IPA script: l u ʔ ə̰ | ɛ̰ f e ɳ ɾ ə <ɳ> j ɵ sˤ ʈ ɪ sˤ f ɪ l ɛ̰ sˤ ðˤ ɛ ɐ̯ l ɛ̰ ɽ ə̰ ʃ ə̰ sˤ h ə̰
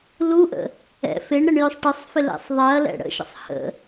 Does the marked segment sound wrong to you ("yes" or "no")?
no